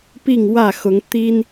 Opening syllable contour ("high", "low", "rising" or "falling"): falling